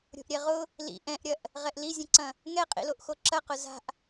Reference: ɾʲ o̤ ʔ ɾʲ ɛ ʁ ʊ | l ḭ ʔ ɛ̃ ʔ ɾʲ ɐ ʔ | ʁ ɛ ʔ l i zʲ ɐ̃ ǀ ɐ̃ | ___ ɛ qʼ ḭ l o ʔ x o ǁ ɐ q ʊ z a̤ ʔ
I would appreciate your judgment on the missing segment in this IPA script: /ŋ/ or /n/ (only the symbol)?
ŋ